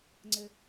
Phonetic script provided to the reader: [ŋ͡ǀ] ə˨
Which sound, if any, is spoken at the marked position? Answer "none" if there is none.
ŋ͡ǀ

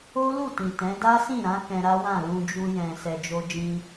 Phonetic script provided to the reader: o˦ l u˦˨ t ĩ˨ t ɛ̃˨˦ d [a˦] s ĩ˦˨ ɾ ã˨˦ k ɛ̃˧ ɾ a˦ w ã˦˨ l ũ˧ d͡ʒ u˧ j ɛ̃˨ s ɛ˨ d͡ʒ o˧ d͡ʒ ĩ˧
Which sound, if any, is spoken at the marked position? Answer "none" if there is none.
a˦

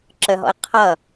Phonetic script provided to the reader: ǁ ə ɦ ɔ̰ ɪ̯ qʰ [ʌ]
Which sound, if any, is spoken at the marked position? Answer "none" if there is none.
ʌ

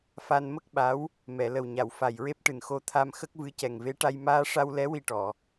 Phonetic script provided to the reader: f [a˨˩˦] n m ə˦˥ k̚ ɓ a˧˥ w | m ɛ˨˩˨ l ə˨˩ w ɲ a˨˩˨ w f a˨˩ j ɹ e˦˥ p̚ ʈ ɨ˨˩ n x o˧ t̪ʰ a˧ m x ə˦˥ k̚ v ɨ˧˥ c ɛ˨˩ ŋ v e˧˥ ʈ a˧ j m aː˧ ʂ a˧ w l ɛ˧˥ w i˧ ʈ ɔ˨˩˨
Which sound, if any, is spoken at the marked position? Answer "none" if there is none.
a˧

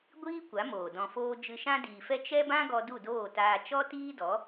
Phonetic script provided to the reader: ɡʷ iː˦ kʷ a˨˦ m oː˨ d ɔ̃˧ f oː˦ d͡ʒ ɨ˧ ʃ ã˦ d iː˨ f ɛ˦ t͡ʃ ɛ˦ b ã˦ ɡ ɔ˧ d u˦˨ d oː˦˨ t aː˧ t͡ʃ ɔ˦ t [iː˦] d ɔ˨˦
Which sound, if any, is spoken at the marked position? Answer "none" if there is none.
iː˦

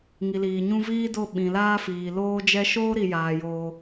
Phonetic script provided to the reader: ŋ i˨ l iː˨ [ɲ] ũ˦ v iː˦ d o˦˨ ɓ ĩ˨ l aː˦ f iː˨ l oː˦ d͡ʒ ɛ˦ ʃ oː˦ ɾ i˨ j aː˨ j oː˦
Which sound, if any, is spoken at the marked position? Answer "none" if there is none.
ɲ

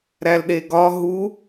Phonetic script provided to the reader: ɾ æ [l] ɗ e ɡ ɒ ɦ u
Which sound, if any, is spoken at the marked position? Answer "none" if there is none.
l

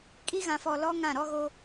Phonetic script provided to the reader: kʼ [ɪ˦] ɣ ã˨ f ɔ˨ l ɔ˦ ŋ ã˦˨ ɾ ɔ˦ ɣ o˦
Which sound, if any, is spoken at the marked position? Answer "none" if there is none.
i˦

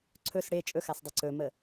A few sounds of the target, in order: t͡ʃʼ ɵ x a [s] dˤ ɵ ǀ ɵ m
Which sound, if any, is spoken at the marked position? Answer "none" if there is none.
s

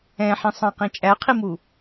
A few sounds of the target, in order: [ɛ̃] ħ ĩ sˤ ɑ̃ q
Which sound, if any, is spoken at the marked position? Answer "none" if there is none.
ɛ̃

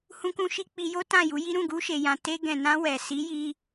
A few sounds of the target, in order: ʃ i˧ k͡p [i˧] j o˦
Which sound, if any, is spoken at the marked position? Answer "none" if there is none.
i˧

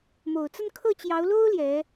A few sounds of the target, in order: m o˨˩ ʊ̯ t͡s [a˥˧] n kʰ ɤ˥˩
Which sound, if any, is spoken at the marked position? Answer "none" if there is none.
ə˥˧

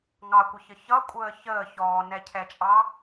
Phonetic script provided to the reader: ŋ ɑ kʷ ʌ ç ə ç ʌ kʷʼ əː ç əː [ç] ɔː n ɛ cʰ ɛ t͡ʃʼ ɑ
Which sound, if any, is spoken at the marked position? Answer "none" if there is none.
ç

